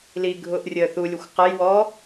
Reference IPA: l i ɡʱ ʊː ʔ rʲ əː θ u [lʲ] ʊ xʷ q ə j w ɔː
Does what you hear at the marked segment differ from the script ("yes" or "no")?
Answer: no